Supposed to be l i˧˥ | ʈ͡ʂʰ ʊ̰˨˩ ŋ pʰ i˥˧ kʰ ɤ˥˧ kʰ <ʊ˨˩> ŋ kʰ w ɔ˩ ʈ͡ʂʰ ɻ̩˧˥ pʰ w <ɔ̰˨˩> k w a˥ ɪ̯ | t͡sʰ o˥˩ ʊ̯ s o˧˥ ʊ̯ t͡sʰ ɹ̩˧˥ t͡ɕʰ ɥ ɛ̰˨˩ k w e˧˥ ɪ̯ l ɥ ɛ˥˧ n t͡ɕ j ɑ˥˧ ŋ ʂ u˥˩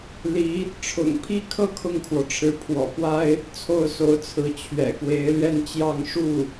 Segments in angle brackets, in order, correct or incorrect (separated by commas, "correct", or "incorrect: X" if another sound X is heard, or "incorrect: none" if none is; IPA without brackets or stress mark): incorrect: ʊ˥˩, correct